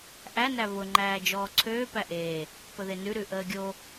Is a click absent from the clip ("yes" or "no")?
no